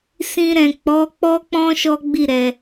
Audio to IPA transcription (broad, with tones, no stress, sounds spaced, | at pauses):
s ĩ˧ ɾ ɛ̃˨ k͡p ɔ˨˦ k͡p ɔ˦ k͡p ɔ̃˦ ʃ ɔ˦ ɡ͡b i˦˨ ɾ ɛ˨